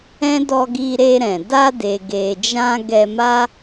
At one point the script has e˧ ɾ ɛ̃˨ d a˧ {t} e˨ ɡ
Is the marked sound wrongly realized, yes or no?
yes